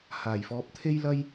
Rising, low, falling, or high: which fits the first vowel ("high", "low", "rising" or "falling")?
low